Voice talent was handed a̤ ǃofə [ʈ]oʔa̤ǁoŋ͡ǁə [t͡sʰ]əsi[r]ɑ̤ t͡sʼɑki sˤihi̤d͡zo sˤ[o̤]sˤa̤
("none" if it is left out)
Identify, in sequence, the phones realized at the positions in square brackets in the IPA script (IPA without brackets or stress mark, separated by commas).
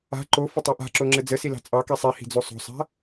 tˤ, d͡z, l, o̤